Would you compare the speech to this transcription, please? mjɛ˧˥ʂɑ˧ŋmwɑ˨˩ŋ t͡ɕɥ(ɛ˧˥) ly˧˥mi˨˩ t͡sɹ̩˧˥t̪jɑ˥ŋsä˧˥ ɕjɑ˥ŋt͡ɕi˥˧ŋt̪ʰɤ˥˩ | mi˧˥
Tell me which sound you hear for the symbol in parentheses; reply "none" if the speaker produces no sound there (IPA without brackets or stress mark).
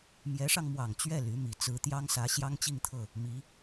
ɛ˥˩